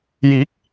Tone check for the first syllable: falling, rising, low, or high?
rising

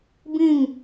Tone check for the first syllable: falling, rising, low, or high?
falling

